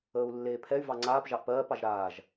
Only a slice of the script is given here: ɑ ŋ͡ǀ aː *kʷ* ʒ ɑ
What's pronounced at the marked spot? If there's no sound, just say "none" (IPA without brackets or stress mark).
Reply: p